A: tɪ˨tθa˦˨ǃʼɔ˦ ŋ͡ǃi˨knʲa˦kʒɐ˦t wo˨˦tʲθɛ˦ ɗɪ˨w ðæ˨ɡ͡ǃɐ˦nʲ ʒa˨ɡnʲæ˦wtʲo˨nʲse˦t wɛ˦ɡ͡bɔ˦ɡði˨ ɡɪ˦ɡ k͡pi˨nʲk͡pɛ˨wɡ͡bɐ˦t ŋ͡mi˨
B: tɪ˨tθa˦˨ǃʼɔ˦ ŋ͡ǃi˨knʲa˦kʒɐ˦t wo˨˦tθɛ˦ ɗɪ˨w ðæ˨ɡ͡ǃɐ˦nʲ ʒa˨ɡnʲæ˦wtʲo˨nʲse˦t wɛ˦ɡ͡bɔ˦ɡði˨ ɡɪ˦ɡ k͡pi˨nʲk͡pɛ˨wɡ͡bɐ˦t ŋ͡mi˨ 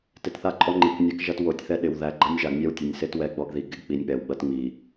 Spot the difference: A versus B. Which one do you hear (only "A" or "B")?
A